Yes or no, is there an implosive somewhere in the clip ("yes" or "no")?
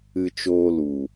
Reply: no